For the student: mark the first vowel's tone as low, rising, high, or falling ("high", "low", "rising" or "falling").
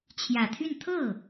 low